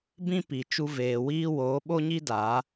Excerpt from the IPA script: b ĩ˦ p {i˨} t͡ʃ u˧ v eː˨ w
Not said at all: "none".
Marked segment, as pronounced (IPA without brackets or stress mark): i˨